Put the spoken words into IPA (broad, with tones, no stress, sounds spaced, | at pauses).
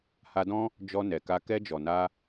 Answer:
h a˧ d ɔ̃˦ | d͡ʒ ɔ˧ n ɛ˨ k a˧ k ɛ˧ d͡ʒ ɔ˨ n a˧